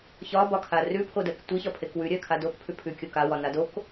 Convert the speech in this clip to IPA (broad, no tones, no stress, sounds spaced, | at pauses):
ç ɒ b ɒ kʰ a r ʉ pʰ o d ɜ k tʷ i ç ɒ pʰ e k w ʉ ɾʲ ɜ kʰ a d o k pʰ ʉ pʰ ʉ kʲ o k a w ɒ n a d o k